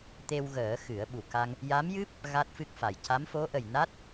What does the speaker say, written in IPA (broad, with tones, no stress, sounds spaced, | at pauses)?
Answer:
t̪ e˧ w ɣ əː˨˩˦ x ɨ˨˩˦ ə̯ ɓ u˨˩ k a˧ ŋ | j a˧˥ m j ɨ˦˥ p̚ | ɣ a˦˥ t̚ f ɨ˦˥ k̚ f a˨˩ j c a˧˥ m f o˧˥ ʔ ə˨˩ j n a˦˥ t̚